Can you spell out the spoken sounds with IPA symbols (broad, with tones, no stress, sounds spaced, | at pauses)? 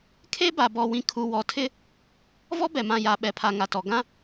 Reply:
kʰ e˦ b a˨ b ɔ˨ w ĩ˨ kʰ u˨ w ɔ˨ tʰ ɪ˦ | v ɔ˦ b ɛ˨ m ã˨ j a˨˦ ɓ ɛ˨ pʰ a˨ ŋ a˨ t ɔ˨ ɡ ã˦